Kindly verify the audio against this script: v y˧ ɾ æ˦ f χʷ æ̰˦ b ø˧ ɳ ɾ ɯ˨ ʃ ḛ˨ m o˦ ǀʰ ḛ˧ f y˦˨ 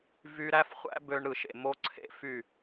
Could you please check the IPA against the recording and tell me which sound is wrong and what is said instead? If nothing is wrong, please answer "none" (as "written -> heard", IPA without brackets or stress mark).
none